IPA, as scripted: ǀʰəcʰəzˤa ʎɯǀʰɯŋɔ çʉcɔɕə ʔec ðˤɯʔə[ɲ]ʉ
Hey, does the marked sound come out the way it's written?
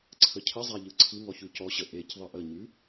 yes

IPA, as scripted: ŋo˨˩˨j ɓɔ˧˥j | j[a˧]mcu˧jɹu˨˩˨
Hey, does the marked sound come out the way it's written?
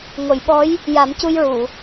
no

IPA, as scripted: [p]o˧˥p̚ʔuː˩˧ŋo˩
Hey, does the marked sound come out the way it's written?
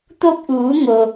no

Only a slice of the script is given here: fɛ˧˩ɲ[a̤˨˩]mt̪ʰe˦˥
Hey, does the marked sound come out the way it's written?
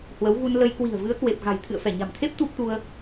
yes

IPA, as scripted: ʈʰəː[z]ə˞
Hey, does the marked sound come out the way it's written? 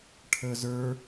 yes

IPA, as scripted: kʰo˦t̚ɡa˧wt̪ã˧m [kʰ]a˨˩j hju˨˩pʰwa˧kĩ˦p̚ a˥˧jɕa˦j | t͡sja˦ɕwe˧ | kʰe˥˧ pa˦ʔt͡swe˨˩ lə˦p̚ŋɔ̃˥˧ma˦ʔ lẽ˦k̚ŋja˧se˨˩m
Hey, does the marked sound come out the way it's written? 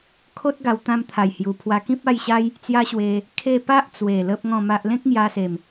no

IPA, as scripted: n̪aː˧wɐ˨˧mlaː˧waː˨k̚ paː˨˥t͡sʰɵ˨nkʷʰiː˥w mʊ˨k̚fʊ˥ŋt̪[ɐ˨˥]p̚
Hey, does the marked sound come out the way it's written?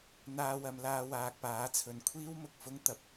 yes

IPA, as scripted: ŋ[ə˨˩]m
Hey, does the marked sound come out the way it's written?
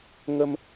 no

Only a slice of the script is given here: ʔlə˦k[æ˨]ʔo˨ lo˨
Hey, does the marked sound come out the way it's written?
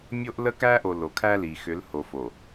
no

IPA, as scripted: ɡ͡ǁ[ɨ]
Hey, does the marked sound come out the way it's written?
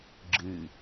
yes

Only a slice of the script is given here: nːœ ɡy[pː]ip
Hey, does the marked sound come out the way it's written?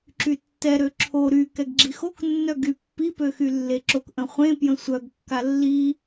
yes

